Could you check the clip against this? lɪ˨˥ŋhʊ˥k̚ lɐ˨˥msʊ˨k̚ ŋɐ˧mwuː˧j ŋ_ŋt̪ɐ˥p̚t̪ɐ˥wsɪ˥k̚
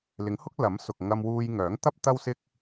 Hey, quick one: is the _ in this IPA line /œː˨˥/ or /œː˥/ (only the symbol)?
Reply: œː˨˥